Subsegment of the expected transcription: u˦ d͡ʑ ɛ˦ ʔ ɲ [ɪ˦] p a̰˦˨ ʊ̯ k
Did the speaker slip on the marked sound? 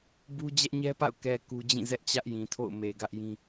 yes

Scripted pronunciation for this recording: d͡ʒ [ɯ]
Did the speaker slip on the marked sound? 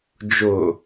yes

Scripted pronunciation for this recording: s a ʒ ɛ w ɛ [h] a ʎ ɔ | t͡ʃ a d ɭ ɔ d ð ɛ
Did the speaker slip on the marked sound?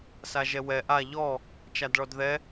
yes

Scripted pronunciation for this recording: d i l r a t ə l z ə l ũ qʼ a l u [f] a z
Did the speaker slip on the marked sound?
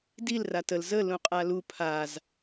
yes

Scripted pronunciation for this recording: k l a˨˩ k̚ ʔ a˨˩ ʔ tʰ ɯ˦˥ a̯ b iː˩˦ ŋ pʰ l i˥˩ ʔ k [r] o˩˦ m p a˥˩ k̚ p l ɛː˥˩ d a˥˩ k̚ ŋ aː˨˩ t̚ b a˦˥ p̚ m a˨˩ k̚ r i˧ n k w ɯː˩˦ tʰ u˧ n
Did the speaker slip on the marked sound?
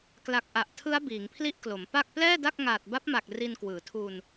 yes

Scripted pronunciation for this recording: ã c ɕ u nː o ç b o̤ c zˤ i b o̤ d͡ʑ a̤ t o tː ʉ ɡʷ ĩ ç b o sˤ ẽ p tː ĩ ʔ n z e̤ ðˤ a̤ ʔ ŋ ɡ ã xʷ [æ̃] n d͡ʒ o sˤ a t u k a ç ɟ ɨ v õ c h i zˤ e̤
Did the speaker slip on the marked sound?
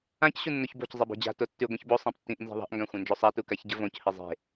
yes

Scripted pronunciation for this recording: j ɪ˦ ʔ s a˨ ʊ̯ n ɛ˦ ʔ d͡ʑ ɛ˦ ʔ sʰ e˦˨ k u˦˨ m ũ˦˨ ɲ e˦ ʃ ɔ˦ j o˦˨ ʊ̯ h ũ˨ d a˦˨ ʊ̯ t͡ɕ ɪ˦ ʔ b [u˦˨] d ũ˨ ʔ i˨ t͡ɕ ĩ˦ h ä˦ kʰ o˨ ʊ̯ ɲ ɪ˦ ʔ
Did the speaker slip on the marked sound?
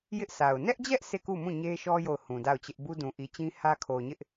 yes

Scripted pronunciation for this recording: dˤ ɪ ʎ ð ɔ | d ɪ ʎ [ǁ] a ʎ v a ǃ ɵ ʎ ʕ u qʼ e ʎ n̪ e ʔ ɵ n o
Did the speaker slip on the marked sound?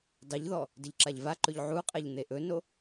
no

